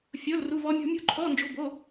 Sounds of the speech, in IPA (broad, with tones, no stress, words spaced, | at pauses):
fʲo˧˥˧lru˧˥˧vɔ˦˥mʲɔ̤˦˥ mʲo̤˦˥ǃʰɔ˧˥˧nd͡ʒo̤˧˥˧ bo˧˥˧